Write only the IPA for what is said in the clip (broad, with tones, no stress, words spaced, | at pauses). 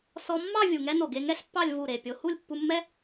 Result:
sɔ˧mːɑ˥˧ vʲu˧˩ŋɛ˥no˧˩ ɡe˧ŋɛ˥ɬpːɑ˥˧lʲ vu˧˩ɾe˧˩ pʲo˧ hu˥˧lʲpːu˧mːɛ˥